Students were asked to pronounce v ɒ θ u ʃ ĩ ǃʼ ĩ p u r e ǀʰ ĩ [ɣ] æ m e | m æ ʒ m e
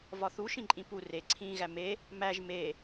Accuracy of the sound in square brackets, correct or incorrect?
correct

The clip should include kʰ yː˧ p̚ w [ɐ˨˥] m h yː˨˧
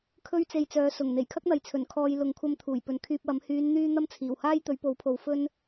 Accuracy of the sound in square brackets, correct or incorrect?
correct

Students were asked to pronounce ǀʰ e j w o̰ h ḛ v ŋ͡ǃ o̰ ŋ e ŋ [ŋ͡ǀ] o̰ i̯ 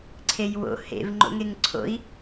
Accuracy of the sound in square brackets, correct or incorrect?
incorrect: ǀʰ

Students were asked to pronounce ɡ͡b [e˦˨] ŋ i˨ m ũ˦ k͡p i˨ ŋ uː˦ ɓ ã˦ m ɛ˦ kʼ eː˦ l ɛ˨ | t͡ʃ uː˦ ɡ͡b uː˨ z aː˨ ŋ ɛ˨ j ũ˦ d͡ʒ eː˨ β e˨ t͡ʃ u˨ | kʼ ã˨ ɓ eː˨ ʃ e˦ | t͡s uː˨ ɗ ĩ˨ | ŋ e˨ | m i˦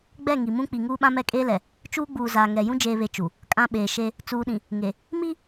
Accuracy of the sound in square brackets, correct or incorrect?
incorrect: ɛ˦˨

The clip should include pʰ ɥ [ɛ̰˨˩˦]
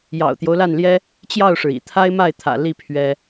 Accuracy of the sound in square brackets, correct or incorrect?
incorrect: ɛ˥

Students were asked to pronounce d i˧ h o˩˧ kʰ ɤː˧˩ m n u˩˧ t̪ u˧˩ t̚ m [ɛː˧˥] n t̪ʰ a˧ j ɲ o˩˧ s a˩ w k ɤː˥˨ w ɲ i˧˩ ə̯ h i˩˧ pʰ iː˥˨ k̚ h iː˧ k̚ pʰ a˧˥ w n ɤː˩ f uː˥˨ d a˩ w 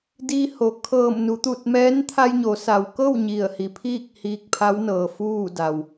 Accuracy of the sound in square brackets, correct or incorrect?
correct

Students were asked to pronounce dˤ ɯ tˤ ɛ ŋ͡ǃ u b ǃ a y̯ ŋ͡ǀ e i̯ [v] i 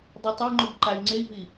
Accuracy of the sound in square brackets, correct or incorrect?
correct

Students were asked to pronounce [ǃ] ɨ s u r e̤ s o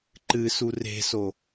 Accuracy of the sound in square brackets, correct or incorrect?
correct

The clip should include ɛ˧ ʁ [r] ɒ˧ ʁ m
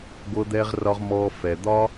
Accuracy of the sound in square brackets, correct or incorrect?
correct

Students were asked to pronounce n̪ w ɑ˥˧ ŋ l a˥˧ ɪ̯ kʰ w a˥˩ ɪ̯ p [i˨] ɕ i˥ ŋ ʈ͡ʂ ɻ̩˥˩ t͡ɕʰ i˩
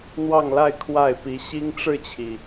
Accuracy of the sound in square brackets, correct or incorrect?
incorrect: i˧˥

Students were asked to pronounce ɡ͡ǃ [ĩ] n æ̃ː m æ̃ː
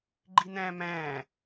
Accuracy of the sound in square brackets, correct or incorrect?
incorrect: i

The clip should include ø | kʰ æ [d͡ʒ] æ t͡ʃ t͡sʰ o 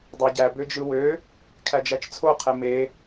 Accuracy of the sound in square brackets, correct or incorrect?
correct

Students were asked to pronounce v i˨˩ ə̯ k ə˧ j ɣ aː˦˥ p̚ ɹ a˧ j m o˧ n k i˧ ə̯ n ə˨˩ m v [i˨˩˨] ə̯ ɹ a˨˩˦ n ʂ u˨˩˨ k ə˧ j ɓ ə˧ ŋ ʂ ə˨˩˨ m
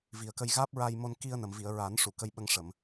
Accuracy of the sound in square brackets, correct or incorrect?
correct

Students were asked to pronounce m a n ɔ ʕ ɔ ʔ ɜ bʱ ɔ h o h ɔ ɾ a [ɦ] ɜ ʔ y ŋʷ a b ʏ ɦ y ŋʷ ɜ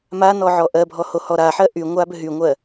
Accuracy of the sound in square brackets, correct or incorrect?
incorrect: ħ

